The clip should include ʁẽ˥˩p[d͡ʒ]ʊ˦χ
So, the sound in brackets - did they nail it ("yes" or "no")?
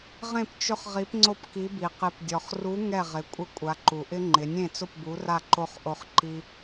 no